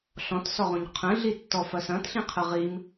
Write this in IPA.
ɬɔ̃tsɔʁõɲ qʰə̃ɮitːɔfɐ sɐ̃tɬĩqʰə ʁim

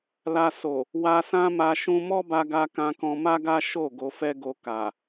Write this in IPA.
la˧ so˨ | wa˧sã˦ma˧ ʃũ˧mɔ˦ba˧ɡa˧ kã˧kɔ̃˧ ma˦ɡa˦ ʃo˦˨ ɡo˧fɛ˦ɡo˧ ka˨

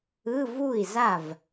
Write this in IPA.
ɯ˧˥˧vu˥˩i̯za˥˩v

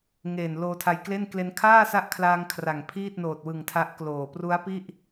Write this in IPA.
ŋe˨˩n loː˧tʰa˧jkle˥˩n kle˧nkʰaː˥˩sa˦˥ʔkʰlaː˧ŋ kʰra˨˩ŋpʰiː˥˩t̚noː˨˩t̚wɯ˨˩ŋ tʰa˦˥ʔkloː˨˩ pru˦˥a̯pi˥˩ʔ

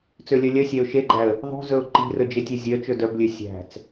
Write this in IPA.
t͡sølʲœlʲœsʲæʊ̯ ʃeɡ͡ǃæə̯ | ðˤṳzɵʊ̯ ǃi̤rɵ d͡ʒetʲezʲœt͡ʃɵ dœblʲø sʲæ̤t͡s

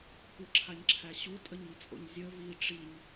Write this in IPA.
kʷəǁʰaɲǁʰæ ɕutʼəɲit͡sʼo̰ɲ zʲə vi ʈ͡ʂiɲ

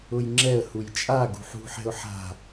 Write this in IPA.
ʊjŋ͡ǁɛə̯huj t͡ʃʼa ɡṳħṳħɛ̤ʊ̯ ħa̤

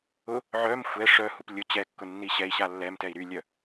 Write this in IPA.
ʊ | ʕœm xʷɛ ʂœhup lʲʊ t͡ɕɛkːʊ nːiɕɛi̯ɕa lːɛmtɛi̯ ɾylʲœ

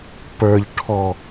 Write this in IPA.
pə˞ʎʈʰɔ

